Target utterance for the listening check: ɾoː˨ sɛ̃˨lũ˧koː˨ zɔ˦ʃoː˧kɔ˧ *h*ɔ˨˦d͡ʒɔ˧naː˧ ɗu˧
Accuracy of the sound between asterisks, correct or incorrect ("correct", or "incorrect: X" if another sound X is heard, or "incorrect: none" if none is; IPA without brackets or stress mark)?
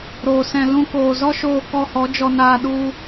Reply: correct